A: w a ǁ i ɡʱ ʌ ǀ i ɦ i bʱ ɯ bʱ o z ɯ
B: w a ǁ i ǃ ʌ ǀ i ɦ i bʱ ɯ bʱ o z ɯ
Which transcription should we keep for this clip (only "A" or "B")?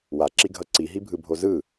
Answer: A